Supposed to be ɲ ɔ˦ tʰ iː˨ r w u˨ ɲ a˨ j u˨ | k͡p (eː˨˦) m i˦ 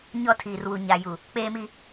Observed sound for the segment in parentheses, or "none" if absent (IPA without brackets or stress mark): eː˦